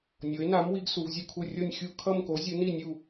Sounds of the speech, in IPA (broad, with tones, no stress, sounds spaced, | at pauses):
nʲ o˨˥ e̯ n a˨˥ m w i˨˥ ɡ s u˨˥ v zʲ u˥˧ kʰ u˥˧ rʲ o˥˧ nʲ xʲ u˥˧ kʰ ʌ˥˧ m k o˨˥ zʲ u˨˥ n i˥˧ nʲ u˥˧